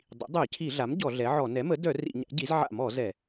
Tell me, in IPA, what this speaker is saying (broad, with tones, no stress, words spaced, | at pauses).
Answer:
dˤḭ˩˥dˤœ˧˩˧cʰi˧˩˧ɮa˩˥m ɟɔ˧˩˧ɮɛ˩˥ʕɔ˧˩˧ nɛ˩˥mə˩˥dœ˧˩˧ rḭ˧˩˧ɲa̰˩˥ ɟi˩˥zʕa̰˧˩˧mɔ˧˩˧ zɛ˧˩˧